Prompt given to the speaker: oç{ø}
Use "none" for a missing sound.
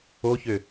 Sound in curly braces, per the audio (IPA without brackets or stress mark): ø